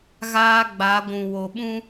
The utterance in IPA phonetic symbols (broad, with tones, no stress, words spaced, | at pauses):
ɣaː˦ ɡ͡ba˨˦ɡʷũ˨wo˨ɓũ˦